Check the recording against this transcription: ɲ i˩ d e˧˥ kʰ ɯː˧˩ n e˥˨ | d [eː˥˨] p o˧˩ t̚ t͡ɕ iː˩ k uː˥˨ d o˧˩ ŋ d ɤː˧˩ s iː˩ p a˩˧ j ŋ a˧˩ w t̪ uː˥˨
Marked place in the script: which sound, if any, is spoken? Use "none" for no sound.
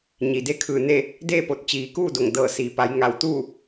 eː˥˨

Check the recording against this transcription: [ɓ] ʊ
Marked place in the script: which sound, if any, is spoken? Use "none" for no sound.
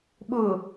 ɓ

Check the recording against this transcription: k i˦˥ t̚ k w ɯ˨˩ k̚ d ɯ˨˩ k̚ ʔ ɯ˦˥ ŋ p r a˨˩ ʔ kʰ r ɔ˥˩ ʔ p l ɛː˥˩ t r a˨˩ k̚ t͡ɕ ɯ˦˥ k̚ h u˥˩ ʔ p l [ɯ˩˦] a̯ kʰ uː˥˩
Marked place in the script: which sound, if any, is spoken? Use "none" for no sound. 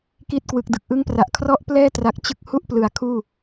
ɯ˨˩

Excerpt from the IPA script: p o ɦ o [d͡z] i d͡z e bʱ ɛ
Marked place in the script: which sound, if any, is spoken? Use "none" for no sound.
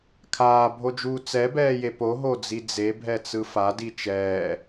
d͡z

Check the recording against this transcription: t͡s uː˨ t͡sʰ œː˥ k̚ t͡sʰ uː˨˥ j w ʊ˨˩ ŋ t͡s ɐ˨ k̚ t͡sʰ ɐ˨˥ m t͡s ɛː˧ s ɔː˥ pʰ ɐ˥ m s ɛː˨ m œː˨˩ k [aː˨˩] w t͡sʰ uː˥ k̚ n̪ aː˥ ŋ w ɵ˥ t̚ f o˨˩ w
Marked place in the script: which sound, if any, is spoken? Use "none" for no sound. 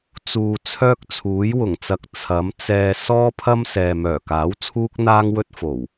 aː˨˥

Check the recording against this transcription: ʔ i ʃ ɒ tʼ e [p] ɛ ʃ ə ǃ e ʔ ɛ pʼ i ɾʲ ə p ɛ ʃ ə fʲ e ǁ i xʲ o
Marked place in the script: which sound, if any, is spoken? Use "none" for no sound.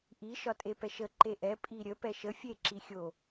p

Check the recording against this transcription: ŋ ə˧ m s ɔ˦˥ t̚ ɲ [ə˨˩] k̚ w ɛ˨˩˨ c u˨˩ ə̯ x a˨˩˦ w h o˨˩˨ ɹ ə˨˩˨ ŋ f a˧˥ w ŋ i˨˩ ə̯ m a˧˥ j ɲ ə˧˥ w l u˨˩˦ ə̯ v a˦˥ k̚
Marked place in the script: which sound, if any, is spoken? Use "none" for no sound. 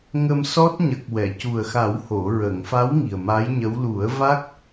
ə˨˩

